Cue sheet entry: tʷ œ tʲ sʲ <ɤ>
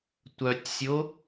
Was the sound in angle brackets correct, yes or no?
no